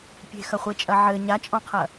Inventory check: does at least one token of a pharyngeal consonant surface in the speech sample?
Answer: yes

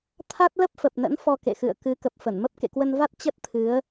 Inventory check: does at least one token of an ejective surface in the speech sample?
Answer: no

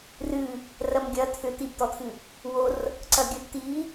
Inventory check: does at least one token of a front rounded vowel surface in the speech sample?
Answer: yes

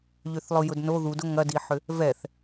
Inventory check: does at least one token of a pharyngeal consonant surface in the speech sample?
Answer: yes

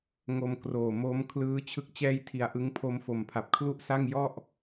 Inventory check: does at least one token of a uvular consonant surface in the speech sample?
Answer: no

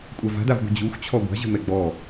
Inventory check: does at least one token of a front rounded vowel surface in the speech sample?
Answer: no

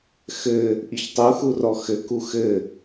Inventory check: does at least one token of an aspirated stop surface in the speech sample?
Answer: no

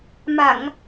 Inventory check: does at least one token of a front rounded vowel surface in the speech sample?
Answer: no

